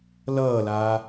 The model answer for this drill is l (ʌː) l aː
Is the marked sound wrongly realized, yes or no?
no